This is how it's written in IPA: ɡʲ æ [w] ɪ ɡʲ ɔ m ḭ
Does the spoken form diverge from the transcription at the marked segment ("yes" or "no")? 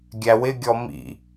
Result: no